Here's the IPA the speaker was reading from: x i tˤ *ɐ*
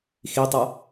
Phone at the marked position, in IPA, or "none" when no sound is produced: ɐ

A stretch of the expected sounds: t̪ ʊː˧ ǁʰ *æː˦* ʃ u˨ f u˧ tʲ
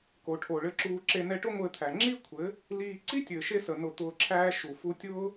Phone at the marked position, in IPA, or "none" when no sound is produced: æː˦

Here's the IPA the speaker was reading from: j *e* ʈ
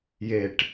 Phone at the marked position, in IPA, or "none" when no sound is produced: e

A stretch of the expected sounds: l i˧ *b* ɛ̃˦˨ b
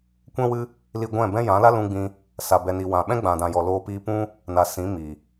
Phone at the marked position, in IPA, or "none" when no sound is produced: ɡʷ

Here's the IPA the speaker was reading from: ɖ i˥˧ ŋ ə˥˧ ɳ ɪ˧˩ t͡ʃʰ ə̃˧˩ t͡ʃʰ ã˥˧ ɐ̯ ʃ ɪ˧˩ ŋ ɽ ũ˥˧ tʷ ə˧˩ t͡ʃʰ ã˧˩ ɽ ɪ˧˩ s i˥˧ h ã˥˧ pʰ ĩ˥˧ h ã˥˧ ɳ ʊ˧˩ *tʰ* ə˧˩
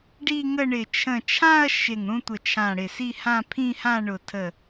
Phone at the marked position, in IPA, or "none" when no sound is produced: tʰ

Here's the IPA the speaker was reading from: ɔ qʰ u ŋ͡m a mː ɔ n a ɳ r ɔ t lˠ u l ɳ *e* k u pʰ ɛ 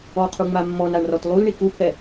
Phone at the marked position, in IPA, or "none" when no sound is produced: i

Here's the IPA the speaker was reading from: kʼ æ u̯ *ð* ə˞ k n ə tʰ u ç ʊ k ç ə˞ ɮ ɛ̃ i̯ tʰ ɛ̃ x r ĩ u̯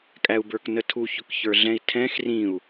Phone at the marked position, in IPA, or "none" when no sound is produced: b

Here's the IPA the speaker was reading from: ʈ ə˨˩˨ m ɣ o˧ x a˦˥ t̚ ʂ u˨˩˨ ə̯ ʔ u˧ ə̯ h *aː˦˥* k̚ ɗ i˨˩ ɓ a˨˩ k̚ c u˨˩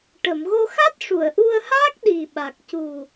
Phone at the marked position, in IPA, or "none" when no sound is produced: aː˦˥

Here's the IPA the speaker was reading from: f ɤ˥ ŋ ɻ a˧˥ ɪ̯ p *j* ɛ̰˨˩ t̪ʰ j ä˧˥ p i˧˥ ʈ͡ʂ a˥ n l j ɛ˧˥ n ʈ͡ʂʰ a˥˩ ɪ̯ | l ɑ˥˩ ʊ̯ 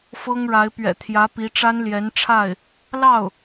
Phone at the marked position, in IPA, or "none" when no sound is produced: ɥ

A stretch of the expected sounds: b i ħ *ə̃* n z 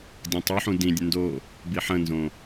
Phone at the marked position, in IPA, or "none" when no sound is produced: ə̃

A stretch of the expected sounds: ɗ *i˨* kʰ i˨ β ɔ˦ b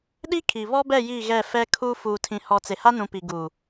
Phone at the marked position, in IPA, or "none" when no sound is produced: i˦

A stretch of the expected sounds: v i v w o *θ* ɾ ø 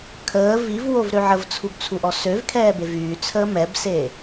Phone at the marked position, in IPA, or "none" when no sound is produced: v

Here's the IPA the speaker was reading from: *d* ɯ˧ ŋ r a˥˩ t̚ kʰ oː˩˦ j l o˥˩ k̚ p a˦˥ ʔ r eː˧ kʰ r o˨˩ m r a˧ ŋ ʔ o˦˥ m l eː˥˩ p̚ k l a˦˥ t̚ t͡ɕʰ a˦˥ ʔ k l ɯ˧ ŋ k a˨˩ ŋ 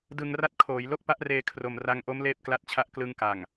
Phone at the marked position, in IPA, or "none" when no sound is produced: d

